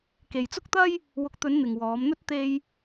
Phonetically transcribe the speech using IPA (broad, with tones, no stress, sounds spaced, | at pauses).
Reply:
k e˨ j t͡s ʊ˥ k̚ t̪ ɐ˥ j | w ʊ˨˥ k̚ t̪ ɵ˨˧ n n̪ ɪ˨ ŋ w ɔː˨˧ m n̪ ɵ˥ t̚ t̪ e˧ j